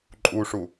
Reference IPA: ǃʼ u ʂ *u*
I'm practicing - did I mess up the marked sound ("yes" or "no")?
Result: no